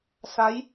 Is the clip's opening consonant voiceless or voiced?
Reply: voiceless